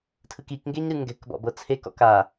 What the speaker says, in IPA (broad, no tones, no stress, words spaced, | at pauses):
tʰɯkikŋɡeɲ ɾɯŋɡɛ̤kbɔ̰ bɤt͡sʰekɔ̰k a